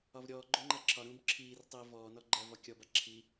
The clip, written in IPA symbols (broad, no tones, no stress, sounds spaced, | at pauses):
ɒ v ɾʲ ɔː ɡ͡ǃ o ŋ͡ǃ a ǁʰ ɒ ɾ ũː b ǁʰ iː r tˤ iː v ɔː n ɔ ɡ͡ǃ ɜ v ɒ kʲ ɔ b a ǁʰ i